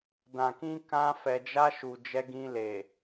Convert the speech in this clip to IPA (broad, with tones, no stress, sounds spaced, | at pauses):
d ã˨ k ĩ˧ k ã˧ f ɛ˨ d͡ʒ a˧ ʃ u˨ d͡ʒ ɛ˧ ɡ ĩ˧ l e˨